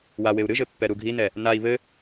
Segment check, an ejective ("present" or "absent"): absent